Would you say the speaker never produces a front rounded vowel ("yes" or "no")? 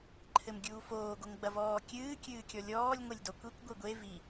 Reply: yes